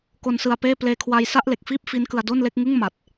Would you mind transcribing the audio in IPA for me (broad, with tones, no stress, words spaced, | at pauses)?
ko˧nsɯ˧a̯peː˥˩ pleː˧kʰwa˧jsa˥˩ʔ le˨˩k̚fiː˥˩p̚ fi˦˥nkɯ˧a̯ do˥˩nle˥˩k̚ ŋɯ˥˩ŋ ma˨˩t̚